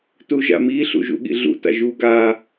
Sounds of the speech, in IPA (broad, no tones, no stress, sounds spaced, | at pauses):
t u ʒ a̰ m i ɬ ṵ ʒ ṵ ɠ ḭ ɮ ṵ t a̰ ʒ u ɡ a